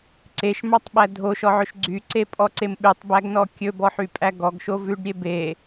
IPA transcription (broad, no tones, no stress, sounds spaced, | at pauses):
ǀ e ʃ m ɑ tˤ ɓ æ dʱ o ʃ ɔ ʕ ɵ ʃ ɡ͡ǀ y ǀ e pʼ ɔ ǀ e m ɓ ʉ tˤ b æ ɡ n ɔ kʲ ɵ b ɔ ħ y pʼ æ ɡ ɔ ɡ ʃ o v ʉ ɖ ɾʲ e b e